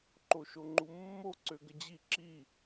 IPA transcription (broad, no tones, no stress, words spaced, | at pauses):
ǃoʃoŋ͡ǃumːo ǀøɡəd͡ʑi ǁi